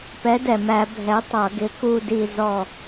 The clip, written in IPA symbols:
pɛ˨˥dɛ˨˩mæ˧˩˧ bʱɛ˨˥tˤʌ˧˩˧ ɡɪ˨˥ku˦˨ di˦˨zɔ˦˨

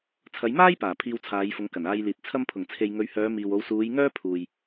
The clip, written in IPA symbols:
t͡sʰɐ˨˧jmaː˥jpaː˨˩ pʰiː˧wt͡sʰaː˨˧jfʊ˨˧ŋ kɐ˨˩naː˧jliː˨t̚ t͡sʰɐ˧mpʰʊ˨˩ŋ t͡sʰe˨jŋɵ˨˧ɥhœː˨˧ miː˨wo˨˧w suː˨˧j ŋœː˥pʰuː˨j

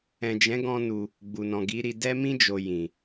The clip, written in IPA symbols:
ɛ̃˨d͡ʒɛ̃˨˦ɡɔ̃˧ nu˧ | ɡ͡bu˨nɔ̃˨ɡi˨˦ɾi˧ dɛ˦mĩ˦ d͡ʒo˧jĩ˨

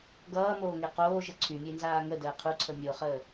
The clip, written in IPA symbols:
ɡʌːmoːŋe qoːʒə ǀʰymʲenzaː ŋədəː qʰuǀʰə mʲoχəː

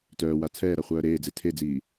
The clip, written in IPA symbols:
tœːwa t͡sʰɛːɾa χʷœːɾeːd͡ze tʰed͡ziː

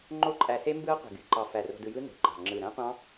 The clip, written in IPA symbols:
ŋ͡ǃo˦˥ǃʼæ˧se˦˥mbɯ˦˥ɐ̯ qʷi̤˧˩ɡy˧˩ǃɑ˧ fæ˧˩ro̤˧dɯ˧jɯ˦˥ no̤˧˩ɡ͡ǃɑ̤˧˩ ŋ͡ǁɯ˧˩ ɾæ̃˦˥qʷɑ̃˦˥

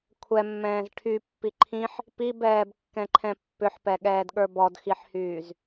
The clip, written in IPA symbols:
kʷʰɛmːɛ̃ːz ʈʰypːi ǃʰĩħ | pibɛːbkːɛ̃ǃʰɛ̃ pːʏħpɛɠɛːdɠə˞ bɔdxiħhyːz

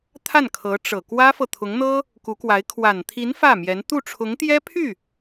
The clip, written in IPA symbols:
t̪ʰa˥˩nkʰɤ˧˥ʈ͡ʂɤ˨˩ kwä˥fɤ˨t̪ʰʊ˧˥ŋn̪ɤ˥ | ku˧˥kwa˧˥ɪ̯ kʰwa˨˩nt̪ʰi˧˥n fä˥˩mjɛ˧˥n t̪u˥˩ʈ͡ʂʰʊ˧˥ŋt̪jɛ˥pʰy˥˩

